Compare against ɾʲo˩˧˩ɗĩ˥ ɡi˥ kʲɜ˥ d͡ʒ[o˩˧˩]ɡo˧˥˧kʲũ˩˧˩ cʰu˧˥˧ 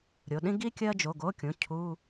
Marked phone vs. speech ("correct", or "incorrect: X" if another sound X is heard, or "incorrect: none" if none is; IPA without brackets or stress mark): correct